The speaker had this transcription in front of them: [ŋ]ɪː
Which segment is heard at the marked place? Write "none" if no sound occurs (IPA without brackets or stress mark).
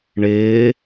ɳ